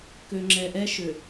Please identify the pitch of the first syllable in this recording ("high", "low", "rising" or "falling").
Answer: low